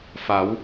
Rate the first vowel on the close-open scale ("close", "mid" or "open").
open